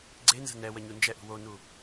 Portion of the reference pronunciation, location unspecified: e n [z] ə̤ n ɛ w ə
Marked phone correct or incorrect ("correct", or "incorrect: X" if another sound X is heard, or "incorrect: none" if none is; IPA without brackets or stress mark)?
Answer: correct